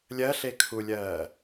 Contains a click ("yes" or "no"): no